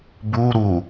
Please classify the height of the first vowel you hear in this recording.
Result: high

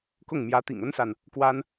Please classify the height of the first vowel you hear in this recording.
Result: high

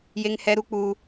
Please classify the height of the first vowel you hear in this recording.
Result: mid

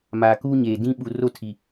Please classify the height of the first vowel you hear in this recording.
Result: low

